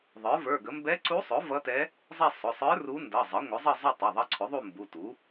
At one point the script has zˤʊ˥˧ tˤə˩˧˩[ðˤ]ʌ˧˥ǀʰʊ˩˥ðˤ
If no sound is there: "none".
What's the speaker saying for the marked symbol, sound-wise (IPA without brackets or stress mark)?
ðˤ